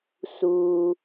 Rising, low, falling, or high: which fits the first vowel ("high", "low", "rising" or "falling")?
low